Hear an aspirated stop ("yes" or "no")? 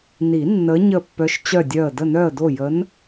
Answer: no